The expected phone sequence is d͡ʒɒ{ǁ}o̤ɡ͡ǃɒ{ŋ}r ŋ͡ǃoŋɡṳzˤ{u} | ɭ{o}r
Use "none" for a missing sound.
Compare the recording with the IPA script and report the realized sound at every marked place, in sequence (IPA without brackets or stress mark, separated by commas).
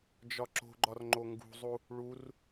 ǁ, none, u, u